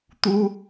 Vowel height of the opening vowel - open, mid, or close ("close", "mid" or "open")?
close